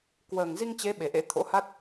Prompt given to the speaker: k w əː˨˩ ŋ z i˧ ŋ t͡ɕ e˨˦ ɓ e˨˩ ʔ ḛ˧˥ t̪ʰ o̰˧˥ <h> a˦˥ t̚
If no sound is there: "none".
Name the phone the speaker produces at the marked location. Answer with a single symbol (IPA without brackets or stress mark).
h